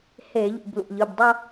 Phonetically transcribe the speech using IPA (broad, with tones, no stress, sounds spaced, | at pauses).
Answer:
h e˧˩˧ ʎ ṵ˧˩ b l ṵ˧˩ ʎ ɯ˩˧˩ b dˤ o˥˧